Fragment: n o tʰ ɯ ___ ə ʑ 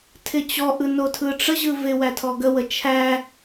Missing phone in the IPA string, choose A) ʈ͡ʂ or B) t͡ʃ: A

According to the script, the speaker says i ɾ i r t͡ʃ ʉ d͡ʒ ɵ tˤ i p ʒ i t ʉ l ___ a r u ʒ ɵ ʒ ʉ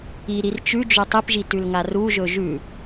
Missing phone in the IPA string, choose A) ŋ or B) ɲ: A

